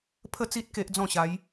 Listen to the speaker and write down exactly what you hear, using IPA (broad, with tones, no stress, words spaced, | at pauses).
pʰə˥˧t͡si˦t̚ ke˦ʔd͡zɔ̃˥˧ɕa˨˦j